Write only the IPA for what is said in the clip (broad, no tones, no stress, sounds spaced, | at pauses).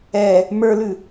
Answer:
ɛ | m ə˞ l ʉ